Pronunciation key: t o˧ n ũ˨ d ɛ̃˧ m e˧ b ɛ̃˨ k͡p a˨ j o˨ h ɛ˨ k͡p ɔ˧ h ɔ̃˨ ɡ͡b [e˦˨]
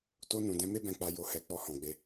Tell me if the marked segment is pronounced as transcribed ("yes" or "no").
no